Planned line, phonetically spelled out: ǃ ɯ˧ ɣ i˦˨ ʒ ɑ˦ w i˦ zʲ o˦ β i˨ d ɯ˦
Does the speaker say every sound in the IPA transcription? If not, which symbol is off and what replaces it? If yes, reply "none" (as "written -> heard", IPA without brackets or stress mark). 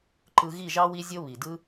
none